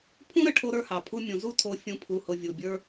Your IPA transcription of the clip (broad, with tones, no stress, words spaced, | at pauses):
pʰũ˦ɾə˨ ʈʰo˦ɾə˞˦hɑ˨ pʰu˧mʲũ˨zu˦ tʰo˦fʲũ˦pʰu˧hʊ˧ vʲu˨bʲə˞˦